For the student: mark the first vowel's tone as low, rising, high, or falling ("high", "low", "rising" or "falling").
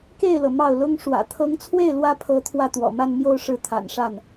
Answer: falling